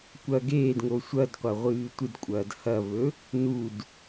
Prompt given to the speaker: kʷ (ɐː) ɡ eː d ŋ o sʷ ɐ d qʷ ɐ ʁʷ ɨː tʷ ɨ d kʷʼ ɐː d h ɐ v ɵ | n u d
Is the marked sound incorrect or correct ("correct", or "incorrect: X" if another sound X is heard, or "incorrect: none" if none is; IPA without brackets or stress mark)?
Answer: incorrect: ɐ